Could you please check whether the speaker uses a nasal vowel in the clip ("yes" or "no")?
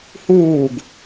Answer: no